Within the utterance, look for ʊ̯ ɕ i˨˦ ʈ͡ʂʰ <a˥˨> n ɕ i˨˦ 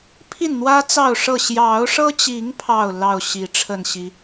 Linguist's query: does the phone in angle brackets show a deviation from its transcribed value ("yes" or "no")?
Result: yes